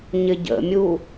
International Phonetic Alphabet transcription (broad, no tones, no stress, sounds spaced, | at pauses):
ɲ ɪ ɟ ə̰ mʲ u